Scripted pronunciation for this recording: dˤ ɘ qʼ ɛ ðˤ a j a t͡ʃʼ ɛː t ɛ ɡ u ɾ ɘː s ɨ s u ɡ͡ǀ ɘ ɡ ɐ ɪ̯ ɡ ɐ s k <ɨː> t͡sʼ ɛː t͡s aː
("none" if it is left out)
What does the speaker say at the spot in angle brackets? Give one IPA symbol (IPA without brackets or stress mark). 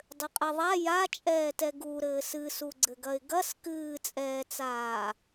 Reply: ɨː